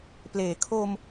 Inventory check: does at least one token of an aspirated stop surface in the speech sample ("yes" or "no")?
yes